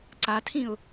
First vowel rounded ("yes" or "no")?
no